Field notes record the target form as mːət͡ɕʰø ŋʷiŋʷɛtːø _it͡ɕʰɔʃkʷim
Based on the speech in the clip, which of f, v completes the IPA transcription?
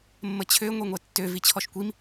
v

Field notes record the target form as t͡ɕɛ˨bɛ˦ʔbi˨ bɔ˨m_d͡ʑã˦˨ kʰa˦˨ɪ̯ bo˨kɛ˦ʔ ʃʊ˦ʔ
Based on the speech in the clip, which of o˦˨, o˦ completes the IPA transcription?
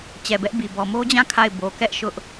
o˦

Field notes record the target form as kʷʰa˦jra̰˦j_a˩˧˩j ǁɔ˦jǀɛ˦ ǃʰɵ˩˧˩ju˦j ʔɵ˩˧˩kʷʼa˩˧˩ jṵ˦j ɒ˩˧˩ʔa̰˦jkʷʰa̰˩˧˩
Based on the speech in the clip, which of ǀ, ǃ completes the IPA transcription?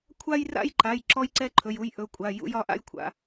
ǃ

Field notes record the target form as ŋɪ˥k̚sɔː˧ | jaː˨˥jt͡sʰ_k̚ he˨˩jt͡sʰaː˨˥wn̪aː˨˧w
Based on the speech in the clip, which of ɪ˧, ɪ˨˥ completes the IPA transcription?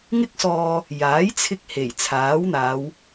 ɪ˧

